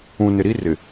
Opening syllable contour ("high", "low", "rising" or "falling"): low